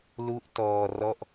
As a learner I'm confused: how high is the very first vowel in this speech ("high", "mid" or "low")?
high